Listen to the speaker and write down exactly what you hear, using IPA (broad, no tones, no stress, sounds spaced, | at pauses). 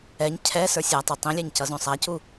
ɛ ɲ cʰ ɛ s ə˞ sʲ a tˤ o tˤ ĩ lʲ æ ɲ c ʌ z õ sˤ æ c u